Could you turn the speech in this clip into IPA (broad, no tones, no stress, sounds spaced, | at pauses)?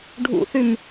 ɖʱ ṵ θ y m